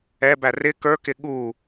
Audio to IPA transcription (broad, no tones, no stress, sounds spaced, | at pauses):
ɛ b æ r ɪ k ə˞ k ɪ ɠ u